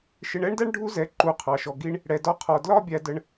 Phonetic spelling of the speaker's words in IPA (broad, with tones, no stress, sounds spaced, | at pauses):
ʃ ɪ˧ ɳ ɛ˦ ɳ d æ˦ ɳ ɖʱ u˦ z ɛ˨˦ ǃ u˨˦ qʰ ɑ˨ ʃ ɔ˨ ɡ i˦ ɳ | ɽ ɛ˨ d ɒ˧ qʰ ɔ˨ d l ɒ˦ bʲ æ˧ d ə˧ ɳ